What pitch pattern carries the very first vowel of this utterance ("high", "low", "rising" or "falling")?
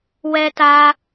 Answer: high